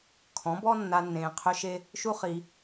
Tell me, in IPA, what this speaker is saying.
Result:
kʰɔ̃˨˦bɔ˦nːa˧ nːẽː˧qʰø˦ʃe˦ | ʃu˦χi˧

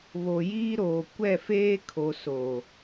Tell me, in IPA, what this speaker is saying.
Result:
βo˨jiː˦ɾoː˨ kʷɛ˦˨feː˦kʰo˨ soː˨

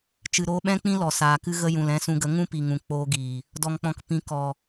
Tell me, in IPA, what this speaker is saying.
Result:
t͡ʃɨ˨ɾoː˧ɓɛ̃˦ k͡pĩ˦ lɔ˨saː˨kɨ˦ ɣə˦ jũ˨lɛ̃˧sũ˧ɡə˨˦ ŋũ˦pi˨ ŋũ˨k͡poː˧ɡiː˨ | dɔ˨ŋk͡pɔ̃˨kpĩ˨˦ kɔ˨

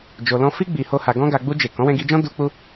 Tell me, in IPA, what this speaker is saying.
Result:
d͡ʒo˧lɔ̃˦ fi˦ ɡ͡bi˧ho˦ha˧ ɡɔ̃˦ɡa˧ ɡ͡bu˧d͡ʒe˨ kɔ̃˨˦wɛ̃˧ɡi˧d͡ʒɔ̃˦ du˦k͡pu˦

